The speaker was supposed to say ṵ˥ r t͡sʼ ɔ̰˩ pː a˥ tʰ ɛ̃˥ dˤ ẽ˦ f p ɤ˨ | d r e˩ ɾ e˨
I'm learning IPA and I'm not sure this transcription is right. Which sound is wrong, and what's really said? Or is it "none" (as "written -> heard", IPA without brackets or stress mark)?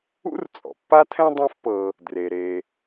none